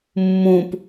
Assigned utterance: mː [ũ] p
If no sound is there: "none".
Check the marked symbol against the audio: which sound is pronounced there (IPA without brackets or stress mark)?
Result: ũ